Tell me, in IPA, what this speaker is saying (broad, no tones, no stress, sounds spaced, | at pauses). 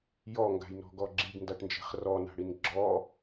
j ɔ ŋ ɡ a̤ j n ɔ̤ ɡ ɔ ɡ͡ǁ i ɡ n d a ʈ n d͡ʒ e̤ χ r ɔ n a̤ ɽ i n ɡ͡ǁ ɔ